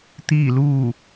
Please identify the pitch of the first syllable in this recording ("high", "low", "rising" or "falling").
falling